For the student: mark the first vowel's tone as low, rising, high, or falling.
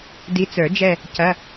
rising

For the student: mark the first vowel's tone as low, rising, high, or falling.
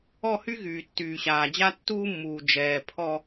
falling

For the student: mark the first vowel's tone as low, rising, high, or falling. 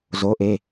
rising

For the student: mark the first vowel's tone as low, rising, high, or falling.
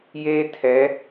high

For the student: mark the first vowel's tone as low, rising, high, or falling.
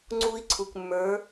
high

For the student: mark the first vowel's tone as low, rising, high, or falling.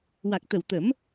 low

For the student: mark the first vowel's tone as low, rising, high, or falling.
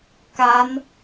rising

